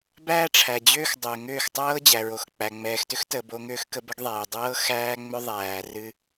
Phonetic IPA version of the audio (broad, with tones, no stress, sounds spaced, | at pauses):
b æː˦ ʈ͡ʂʰ æ˨ d͡ʑ ʏː˦ x dˤ ʏː˨ ŋ ʏː˦˨ x tˤ ɤː˦ d͡ʑ æ˨ ɹ o˨ x k͡p æ˨ ŋ͡m ɛː˨ x t ʏ˦ x t əː˨ b o˦ ŋ ʏː˦ x k ə˦ b ə˦ ɡ ðˤ ɛː˨ dˤ ɤː˦ x æː˦ ŋ͡m ʏ˦ ðˤ æː˨ r ɨ˦